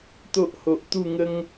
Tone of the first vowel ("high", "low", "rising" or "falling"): high